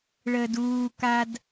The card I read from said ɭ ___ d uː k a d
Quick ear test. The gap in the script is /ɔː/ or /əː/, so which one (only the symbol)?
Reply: əː